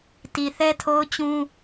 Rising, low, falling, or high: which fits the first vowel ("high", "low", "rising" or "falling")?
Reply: low